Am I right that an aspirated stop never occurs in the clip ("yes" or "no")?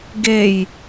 yes